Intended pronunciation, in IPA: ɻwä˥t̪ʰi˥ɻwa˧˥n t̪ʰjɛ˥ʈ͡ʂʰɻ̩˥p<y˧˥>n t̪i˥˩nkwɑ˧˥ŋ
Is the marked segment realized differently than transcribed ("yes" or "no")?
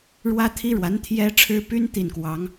yes